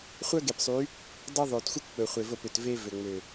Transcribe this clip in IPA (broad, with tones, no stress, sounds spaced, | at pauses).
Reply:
χʷ œ˦ ɡ e˨ p sˤ y˨˦ | dˤ ɛ˦ ðˤ o˨ t xʷ œ˦ kʷ k͡p ɵ˨ χʷ e˨ v o˦˨ p ø˨ t v e˦ v ø˨ ŋ͡m ø˨